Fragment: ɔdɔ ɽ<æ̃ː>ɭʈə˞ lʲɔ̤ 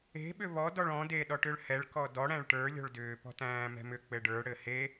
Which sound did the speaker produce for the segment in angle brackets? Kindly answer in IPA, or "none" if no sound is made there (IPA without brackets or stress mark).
æ̃